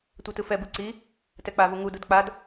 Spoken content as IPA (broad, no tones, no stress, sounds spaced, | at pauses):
tʷ ɛ t ɯ f ɛ b ɯ ǀ i | t ɛ k͡p a v u ŋ u d u d k͡p a d